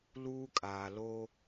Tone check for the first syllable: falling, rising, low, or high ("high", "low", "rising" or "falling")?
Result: high